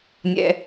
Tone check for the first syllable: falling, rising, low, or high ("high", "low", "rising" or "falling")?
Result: low